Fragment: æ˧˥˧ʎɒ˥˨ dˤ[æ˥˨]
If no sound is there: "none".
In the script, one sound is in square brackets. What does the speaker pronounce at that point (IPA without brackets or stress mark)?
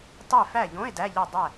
æ˥˨